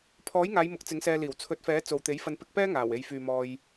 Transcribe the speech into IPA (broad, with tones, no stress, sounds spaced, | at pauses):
pʰ ɔː˨˥ j ŋ aː˨˧ j m ʊ˨˥ k̚ t͡s ɪ˨˥ ŋ s ɛː˧ l iː˨˩ w t͡sʰ ɵ˨˥ t̚ f ɛː˨˥ t͡s o˨ w t̪ e˨˥ j f ɐ˧ n p ɪ˧ k̚ p ɛː˥ ŋ aː˨˩ w e˨ j f yː˨ m ɔː˧ j